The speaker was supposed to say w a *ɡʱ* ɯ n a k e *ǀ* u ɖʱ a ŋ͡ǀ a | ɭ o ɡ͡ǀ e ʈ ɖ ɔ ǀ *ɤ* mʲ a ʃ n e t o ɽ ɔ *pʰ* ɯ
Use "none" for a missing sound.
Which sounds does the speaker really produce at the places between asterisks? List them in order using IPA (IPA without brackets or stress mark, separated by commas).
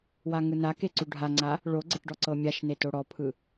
ŋ, ǀ, ɤ, pʰ